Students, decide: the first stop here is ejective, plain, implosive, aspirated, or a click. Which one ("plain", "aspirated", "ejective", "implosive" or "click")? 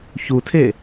aspirated